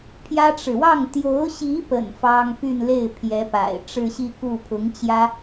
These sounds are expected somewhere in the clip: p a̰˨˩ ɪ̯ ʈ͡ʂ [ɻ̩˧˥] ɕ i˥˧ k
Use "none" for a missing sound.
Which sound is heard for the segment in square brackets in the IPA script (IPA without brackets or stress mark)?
ɻ̩˥˧